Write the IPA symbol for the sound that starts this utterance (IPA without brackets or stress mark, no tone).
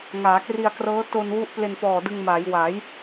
ŋ